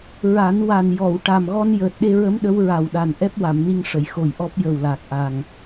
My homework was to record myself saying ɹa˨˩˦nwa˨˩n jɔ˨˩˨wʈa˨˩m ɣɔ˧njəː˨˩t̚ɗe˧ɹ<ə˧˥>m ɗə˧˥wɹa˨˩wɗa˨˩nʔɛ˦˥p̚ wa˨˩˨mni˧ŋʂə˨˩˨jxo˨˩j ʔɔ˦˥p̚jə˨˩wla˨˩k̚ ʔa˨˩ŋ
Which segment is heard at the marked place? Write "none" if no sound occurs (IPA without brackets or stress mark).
ə˧˥